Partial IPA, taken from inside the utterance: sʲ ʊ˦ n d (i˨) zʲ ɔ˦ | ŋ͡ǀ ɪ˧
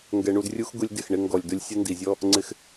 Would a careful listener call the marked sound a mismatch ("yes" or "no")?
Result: no